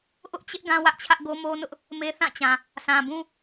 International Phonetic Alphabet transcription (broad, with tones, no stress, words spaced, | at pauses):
ʔʊ˦ʔt͡ɕɪ˦ʔ ɡã˦wä˦ʔt͡ɕʰä˦ʔɡo˦ mo˦nʊ˦ʔ | me˦θã˦˨t͡ɕã˨ | sã˨bũ˦